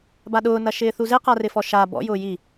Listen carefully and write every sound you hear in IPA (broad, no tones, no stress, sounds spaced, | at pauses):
b a ɗ ʊː n ɐ ʃ ɪː θ u z e q a r ɪ f ɔ ʃ a b ɔ̰ j ʊː j i